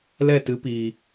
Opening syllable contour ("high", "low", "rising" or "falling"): falling